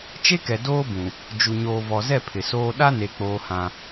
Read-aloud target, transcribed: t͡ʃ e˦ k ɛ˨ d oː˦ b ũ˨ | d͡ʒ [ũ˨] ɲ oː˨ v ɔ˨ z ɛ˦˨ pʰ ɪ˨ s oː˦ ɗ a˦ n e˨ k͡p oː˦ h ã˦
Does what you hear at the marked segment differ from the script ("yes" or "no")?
yes